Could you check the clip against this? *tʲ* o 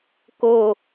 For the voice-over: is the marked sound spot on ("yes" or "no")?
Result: no